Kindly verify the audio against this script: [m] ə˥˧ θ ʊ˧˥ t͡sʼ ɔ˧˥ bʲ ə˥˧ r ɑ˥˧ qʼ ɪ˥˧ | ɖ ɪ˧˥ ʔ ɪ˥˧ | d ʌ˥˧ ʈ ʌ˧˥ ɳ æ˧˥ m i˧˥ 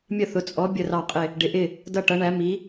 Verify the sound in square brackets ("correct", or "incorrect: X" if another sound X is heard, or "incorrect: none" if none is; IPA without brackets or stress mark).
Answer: incorrect: mʲ